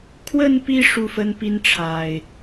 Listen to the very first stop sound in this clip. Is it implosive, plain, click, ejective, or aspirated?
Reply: aspirated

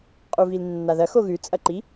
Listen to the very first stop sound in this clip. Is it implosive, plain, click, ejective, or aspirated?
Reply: ejective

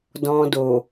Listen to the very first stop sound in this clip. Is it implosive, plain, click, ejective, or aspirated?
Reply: plain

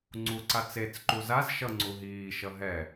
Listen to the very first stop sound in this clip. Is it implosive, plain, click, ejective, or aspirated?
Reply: click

